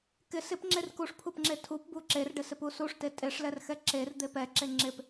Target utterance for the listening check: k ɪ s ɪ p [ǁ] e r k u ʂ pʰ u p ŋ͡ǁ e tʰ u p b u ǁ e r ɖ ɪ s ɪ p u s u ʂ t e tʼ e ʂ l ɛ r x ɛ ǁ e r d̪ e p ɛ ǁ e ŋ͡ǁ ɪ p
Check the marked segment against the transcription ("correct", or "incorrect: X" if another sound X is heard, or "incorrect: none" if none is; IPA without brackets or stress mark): incorrect: ŋ͡ǁ